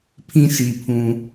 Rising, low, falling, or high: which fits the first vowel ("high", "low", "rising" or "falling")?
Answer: low